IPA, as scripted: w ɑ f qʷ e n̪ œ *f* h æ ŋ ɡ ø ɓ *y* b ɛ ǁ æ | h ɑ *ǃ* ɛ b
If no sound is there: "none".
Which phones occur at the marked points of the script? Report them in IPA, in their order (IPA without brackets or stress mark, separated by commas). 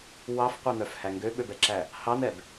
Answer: f, ø, n̪